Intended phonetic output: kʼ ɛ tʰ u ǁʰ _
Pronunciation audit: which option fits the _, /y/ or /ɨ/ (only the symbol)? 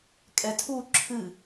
ɨ